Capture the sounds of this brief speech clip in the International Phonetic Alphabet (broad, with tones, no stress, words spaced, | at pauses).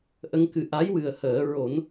ʔə˧˥ŋkɨ˨˩ ʔa˧˥j wɨ˨˩ə̯həː˨˩˦ ɹo˨˩˦n